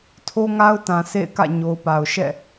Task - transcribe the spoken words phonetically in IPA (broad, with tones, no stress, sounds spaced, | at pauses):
tʰ o˦ ŋ a˦ ʊ̯ t ã˨ s ḛ˦˨ ɪ̯ k ä̰˦˨ ɲ o˨ ʊ̯ p a˨ ʊ̯ ʃ ɛ̰˦˨